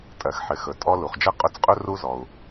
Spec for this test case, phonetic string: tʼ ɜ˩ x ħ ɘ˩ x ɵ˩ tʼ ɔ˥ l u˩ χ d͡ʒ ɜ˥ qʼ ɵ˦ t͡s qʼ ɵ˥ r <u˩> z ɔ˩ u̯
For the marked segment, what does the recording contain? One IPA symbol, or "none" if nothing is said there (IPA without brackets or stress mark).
u˥